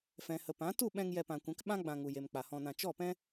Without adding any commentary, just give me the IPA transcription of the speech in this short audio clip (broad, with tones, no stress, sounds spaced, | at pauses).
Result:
f ɛ̃˨ h ə˨ p ã˨˦ t u˦˨ ɓ ɛ̃˧ ŋ j ɛ˧ p ã˨ kʷ ɛ̃˨˦ k ɓ ã˦ ɡ͡b ã˧ ŋ u˨ j e˨ m k͡p a˨ h ɔ̃˧ n ã˧ t͡ʃ ɔ˦˨ p ɛ̃˦